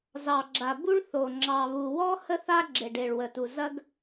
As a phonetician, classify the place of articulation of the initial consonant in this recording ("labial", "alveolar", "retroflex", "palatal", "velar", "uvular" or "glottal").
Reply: alveolar